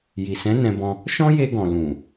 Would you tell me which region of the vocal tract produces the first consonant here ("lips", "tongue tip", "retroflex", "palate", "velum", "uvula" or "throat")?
palate